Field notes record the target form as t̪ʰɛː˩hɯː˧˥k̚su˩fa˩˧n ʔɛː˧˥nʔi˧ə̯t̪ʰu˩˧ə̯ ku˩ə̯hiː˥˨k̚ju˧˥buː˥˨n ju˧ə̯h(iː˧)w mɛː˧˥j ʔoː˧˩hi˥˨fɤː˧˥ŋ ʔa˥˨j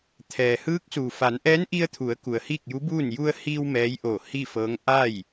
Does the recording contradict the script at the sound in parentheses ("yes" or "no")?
no